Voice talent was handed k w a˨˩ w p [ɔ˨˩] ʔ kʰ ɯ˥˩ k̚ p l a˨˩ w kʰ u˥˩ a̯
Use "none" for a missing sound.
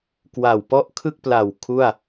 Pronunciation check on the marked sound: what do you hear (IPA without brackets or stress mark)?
ɔ˥˩